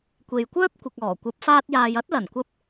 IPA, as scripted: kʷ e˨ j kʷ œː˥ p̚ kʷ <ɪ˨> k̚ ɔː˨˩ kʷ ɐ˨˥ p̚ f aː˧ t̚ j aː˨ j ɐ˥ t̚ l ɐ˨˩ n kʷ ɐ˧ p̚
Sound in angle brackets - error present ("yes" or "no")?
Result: no